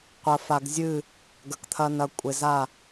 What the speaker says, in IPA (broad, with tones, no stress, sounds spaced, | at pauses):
qʷ ɐ˨ f a˨ ɡ zʲ ɨ˦˨ | ɡ ɐ˨ k t̪ʰ ɐ˦ n ɐ˨ kʷʼ e˨ z a˦˨